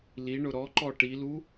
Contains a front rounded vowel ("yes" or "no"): no